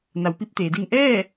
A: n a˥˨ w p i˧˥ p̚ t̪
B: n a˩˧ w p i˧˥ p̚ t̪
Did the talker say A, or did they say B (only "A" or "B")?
B